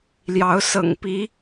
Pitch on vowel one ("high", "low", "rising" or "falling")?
rising